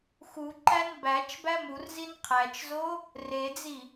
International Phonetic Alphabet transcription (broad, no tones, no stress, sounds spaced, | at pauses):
x u ǃ æ n b æ t͡ʃ b æ m u r z i n qʰ æ t͡ʃ z o | r e d͡z i